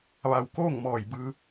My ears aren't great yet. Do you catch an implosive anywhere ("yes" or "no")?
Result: no